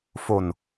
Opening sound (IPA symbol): f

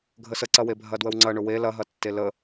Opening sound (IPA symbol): ɡʱ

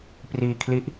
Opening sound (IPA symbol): p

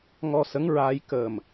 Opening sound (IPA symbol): ŋ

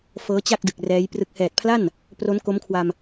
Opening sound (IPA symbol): f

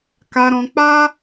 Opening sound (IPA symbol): k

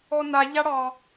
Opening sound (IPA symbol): ɔ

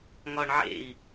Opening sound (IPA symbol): ŋ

